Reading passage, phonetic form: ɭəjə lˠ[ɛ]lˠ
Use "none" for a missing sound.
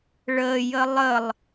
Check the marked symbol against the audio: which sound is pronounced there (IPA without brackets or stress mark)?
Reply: ə